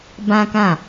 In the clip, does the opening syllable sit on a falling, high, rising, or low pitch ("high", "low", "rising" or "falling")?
high